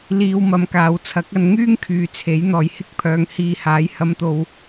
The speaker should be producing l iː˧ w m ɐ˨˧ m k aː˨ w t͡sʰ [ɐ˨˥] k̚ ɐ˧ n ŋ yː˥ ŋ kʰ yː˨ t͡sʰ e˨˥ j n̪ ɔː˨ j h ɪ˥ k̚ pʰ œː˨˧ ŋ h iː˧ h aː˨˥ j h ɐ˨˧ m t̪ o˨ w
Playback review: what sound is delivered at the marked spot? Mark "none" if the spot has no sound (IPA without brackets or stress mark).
ɐ˨˥